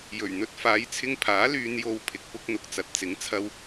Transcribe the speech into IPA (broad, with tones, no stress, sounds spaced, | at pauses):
j ɵ˨˩ ɥ n̪ ɵ˧ t̚ f aː˨˧ j t͡sʰ ɪ˧ ŋ pʰ aː˨˥ l yː˧ n j o˧ w pʰ ɪ˨ k̚ p ʊ˥ k̚ n̪ ʊ˨˥ k̚ t͡s ɐ˨ t̚ t͡s ɪ˨˥ ŋ t͡sʰ ɐ˥ w